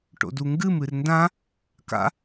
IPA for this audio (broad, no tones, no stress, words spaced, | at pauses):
ʈo̰duŋɡɨm ɨrndã | ka̰